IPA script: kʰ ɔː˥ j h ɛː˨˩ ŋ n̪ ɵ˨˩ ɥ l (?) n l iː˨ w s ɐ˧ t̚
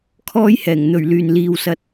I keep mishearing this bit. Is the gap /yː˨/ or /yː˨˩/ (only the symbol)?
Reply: yː˨˩